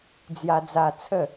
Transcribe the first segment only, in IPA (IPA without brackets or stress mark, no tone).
d͡z